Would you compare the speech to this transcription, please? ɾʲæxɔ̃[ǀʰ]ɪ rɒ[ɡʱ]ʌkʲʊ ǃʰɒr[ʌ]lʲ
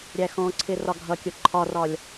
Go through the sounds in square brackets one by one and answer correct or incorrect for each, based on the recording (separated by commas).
correct, correct, incorrect